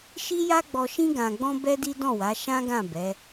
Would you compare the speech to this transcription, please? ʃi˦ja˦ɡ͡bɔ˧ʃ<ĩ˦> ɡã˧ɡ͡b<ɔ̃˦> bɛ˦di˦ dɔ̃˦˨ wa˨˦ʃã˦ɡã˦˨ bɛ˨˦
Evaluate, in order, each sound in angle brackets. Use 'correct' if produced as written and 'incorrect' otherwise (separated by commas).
correct, correct